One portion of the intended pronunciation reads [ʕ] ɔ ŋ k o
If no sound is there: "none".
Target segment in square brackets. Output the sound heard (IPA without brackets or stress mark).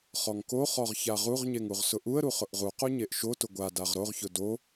χ